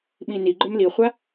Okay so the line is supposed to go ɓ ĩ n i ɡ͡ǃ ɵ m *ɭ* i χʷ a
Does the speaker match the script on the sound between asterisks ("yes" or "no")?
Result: no